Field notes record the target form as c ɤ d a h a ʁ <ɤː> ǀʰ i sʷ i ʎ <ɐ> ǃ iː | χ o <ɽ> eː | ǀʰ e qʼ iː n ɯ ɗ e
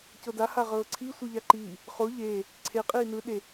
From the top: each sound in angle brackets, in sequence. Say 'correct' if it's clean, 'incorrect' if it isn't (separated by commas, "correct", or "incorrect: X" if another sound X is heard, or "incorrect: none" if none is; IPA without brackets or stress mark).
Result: correct, incorrect: a, incorrect: ʎ